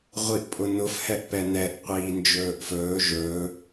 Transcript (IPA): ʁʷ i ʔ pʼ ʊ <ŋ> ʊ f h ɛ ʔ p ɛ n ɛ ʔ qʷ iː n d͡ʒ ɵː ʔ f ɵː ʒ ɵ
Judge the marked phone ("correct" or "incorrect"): incorrect